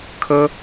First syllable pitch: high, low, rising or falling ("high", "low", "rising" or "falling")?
high